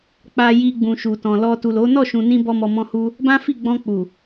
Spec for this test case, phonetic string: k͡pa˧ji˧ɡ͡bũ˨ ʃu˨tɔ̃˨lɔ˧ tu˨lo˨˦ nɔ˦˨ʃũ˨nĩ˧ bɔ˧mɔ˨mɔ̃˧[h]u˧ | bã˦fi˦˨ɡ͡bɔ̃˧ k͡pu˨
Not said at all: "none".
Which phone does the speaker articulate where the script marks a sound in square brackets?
h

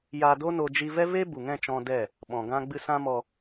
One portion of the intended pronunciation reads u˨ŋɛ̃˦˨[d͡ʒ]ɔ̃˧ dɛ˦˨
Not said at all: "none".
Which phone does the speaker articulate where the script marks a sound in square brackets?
t͡ʃ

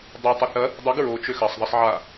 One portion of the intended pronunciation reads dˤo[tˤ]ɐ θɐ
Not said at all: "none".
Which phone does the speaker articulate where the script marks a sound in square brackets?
tˤ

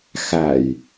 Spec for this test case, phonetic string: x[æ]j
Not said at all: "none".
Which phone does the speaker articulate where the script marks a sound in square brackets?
æ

